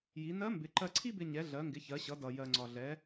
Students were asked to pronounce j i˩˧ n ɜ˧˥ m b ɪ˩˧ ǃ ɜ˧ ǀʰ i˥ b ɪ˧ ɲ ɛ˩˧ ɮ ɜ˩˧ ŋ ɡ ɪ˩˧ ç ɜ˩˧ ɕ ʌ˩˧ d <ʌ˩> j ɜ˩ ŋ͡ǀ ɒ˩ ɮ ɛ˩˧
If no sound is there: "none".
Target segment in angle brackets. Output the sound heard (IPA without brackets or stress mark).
ʌ˩